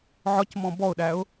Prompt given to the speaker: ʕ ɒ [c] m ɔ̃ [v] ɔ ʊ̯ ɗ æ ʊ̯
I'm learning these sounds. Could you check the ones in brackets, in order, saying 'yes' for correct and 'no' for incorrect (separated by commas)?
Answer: yes, no